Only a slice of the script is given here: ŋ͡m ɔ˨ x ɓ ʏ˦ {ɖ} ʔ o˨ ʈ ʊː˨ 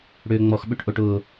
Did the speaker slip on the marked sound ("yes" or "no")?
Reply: yes